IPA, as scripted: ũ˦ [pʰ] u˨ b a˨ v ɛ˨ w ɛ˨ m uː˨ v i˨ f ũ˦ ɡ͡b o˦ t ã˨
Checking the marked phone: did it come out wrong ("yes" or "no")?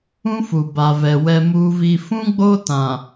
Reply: yes